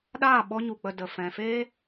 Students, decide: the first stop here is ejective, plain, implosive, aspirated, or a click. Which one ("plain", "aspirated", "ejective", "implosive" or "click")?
implosive